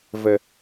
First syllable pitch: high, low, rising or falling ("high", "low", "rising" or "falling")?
low